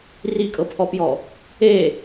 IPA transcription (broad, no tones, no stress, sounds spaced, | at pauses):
r i kʼ ɤ pʰ ɔ p j ɔ | e